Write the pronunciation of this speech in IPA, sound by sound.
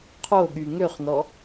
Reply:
qʰ o ɠ y ŋ ø χ n ɔ

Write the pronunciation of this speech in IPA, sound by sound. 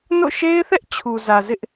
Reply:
n o̰˦˨ ʃ e˦ ɪ̯ θ ɛ˦ ʔ t͡ɕʰ u˨ z ä˨ z ɪ˦ ʔ

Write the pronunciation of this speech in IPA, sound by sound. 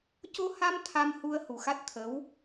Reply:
c o˧ h a˧ m t̪ʰ a˧ m h u˧ ə̯ h u˨˩ x a˦˥ t̚ t̪ʰ ə˧˥ w

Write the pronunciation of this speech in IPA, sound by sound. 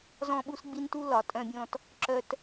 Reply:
z ɔ̃˧ ɓ u˧ s ɡ͡b i˧ n t u˧ l ɒ˨˩˦ tʼ œ̃˧ bʲ ɔ̃˧ t | ǁ œ˧ t

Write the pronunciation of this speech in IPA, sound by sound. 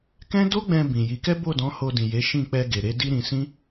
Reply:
k ɛ̃˦ d o˦ ɡ͡b ɛ̃˧ b ĩ˨ j i˨˦ k ɛ˦ b o˦˨ d ɔ̃˨˦ h o˧ d ĩ˨ j e˨˦ ʃ ĩ˦˨ k͡p ɛ˧ ɡ e˨ ɾ e˨˦ d i˦ ɾ ĩ˧ s ĩ˦

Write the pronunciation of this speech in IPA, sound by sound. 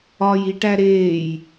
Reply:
ɒ j i ʈ æ ɾ eː j

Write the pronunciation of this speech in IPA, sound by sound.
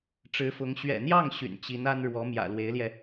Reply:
ʈ͡ʂ ɻ̩˧˥ f ʊ˧˥ ŋ ɕ ɥ ɛ̰˨˩ n̪ j ɑ˥˩ ŋ ɕ y̰˨˩ n t͡ɕ i˧˥ n a˥ n ɻ w ɔ˧˥ m j ä̰˨˩ l w e˧˥ ɪ̯ l j ɛ˧

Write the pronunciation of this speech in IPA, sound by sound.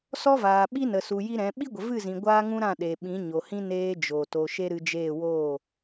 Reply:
s ɔ˦ v aː˨ ɓ i˦ n ə˨ s u˨ j i˦ ɾ ɛ̃˨˦ ɓ i˦ ɡʷ ə˨ v ɨ˦˨ z ĩ˨ ɡʷ aː˦ ŋ ũ˦ ɾ ã˦˨ ɗ eː˨ ɓ ĩ˨˦ ɲ o˨ h ĩ˦ n eː˦ d͡ʒ oː˨ t o˧ ʃ e˦ ɾ ɨ˧ d͡ʒ eː˦˨ w oː˦˨

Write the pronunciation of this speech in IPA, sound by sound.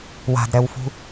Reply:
w a̤ d ɾ ɛ w f ṳ

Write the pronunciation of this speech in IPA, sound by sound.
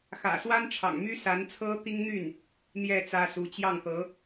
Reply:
x ä̰˨˩ s w a˥ n ʈ͡ʂʰ ɑ̰˨˩ ŋ m y˥ s a˧˥ n t͡sʰ ɤ˥ t̪ i˥ ŋ n̪ y˥˩ n | n̪ j ɛ˥˩ t͡s ä˥ s u˧˥ t͡ɕ j ɑ˥˩ ŋ t̪ ɤ˧˥

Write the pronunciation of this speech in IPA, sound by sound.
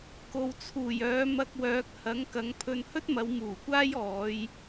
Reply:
k o˨ w t͡sʰ uː˨˩ j œː˨˧ m ɐ˧ k̚ w œː˨˥ k̚ h ɐ˨˥ ŋ k ɐ˨˧ ŋ pʰ ɵ˧ n h ɵ˥ t̚ m ɐ˨˧ w m uː˨˩ kʷ aː˥ j ɔː˨˧ j

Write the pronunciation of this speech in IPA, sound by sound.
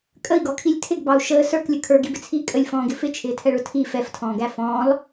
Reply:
kʼ ə i̯ ɡ ɔ kʰ i lʲ tʰ ɪ ɡ b ɑ u̯ ʃ əː s ə˞ k lʲ ə kʰ ə˞ ɡ i b ɪ t͡sʰ iː kʼ ə lʲ f ɔ̃ː ɡ ɪ f ɪ t͡ʃʰ ɪː tʰ ɛ ɭ ʊ tʰ iː f ɛ f tʰ ɔ̃ː ɡ æ f ɔ̃ː lˠ

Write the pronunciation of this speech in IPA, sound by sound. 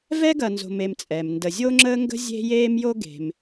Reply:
v ɛ˥ ɡ ɐ˨ n z o̤˨ m e˨ m t͡sʼ ɛ˩ m n d ə˨ zʲ o˥ ŋ͡ǁ əː˥ ŋ ɡ ə̤˥ zʲ e̤˥ j eː˥ m j o˥ ɡ e̤˨ m

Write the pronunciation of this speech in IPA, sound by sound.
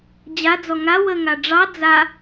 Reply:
d͡ʑ a d͡z ɔ ŋ a w ə ŋ a ɖ͡ʐ ɑ d͡z a

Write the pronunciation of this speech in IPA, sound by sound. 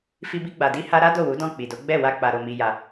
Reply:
f i˧ b i˧ ɡ͡b a˨ d i˧ h a˧ ɾ a˦ d o˦˨ w u˨˦ d ɔ̃˦˨ k͡p i˨ d o˨˦ ɡ͡b ɛ˦˨ w a˧ k͡p a˨ ɾ o˨ m i˨ j a˨

